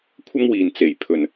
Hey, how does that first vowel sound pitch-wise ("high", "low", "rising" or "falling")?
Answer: high